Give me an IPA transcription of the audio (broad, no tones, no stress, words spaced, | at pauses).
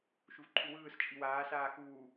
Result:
ʃuvǃʰuwɯːs t͡ʃʼiwaː saːxuː